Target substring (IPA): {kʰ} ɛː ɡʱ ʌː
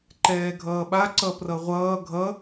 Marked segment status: incorrect: ǃ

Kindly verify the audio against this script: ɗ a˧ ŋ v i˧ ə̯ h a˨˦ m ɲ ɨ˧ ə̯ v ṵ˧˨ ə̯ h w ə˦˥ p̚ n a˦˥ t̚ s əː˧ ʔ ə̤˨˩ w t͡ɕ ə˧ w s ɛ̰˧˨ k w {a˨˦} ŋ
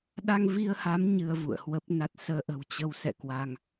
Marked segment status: incorrect: a˧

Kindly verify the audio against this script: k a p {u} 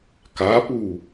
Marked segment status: correct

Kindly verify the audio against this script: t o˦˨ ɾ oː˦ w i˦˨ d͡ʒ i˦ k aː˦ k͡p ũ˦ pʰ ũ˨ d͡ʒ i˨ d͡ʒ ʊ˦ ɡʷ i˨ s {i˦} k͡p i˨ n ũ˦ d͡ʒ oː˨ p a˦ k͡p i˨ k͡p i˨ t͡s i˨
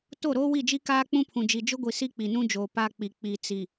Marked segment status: correct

